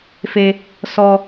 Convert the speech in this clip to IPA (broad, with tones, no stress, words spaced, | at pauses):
fe˦ | sɔ˦